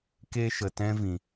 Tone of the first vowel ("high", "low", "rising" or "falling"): high